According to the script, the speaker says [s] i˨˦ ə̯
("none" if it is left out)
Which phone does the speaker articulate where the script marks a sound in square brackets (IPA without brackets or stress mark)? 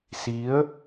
s